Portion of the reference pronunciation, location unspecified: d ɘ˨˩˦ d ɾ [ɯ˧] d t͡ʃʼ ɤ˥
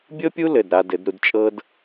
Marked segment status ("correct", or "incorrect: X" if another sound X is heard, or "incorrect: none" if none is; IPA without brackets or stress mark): incorrect: u˧